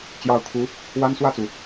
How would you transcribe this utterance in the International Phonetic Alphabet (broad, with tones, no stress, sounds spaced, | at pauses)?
t͡ɕ j ɑ˧˥ ʊ̯ kʰ u˧˥ | w a˥ n s w ä˥˩ t͡s u˩